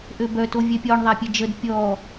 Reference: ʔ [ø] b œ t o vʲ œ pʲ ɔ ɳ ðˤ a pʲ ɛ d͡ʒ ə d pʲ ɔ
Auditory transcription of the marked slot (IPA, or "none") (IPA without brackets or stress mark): ø